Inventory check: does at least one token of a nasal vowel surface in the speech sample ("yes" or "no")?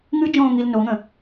yes